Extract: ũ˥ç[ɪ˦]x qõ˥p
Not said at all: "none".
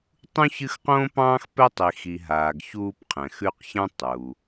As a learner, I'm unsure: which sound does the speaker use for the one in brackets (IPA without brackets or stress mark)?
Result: ɨ˦